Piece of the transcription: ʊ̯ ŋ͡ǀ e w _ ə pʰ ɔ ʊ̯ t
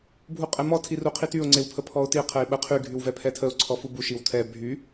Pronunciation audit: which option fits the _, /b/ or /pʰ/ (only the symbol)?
pʰ